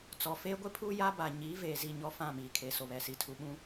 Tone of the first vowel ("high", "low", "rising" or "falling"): low